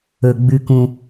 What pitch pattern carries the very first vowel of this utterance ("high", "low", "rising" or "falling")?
low